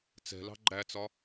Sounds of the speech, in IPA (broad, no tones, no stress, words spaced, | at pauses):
t͡sɛ̤lɑ̤ ɡ͡ǃæt͡sɒ